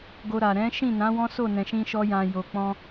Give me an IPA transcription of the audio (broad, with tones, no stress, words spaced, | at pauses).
ɡo˧ɾa˨ ɾɛ̃˨˦ʃĩ˦˨nã˨˦ wɔ̃˦so˦˨ nɛ̃˨ʃĩ˧ʃɔ˧ jã˨ jo˨k͡pɔ̃˧